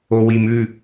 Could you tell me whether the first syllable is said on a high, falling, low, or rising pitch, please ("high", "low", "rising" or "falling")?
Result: low